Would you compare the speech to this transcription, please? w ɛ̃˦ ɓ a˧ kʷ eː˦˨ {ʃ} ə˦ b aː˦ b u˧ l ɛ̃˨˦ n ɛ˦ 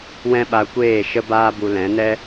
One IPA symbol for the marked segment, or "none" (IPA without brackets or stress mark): ʃ